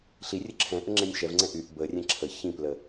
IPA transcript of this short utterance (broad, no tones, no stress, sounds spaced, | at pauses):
ɬ i rʲ ə ǁʰ ɛ̃ ʔ ə ŋ͡ǁ ɛ̃ nʲ ʃ ɛ v ŋ͡ǀ ɛ̃ ʔ y ʔ b ə rʲ ɛ̃ ǁʰ ə ç ĩ p l ə